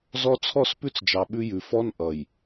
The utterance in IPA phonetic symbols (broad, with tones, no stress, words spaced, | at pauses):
zɔ˦ t͡sʰɔ˦˨spʉ˦t͡sd͡ʒɑ˨ ɓʉ˦jʉ˨ fɔ˦n ʔʌ˨j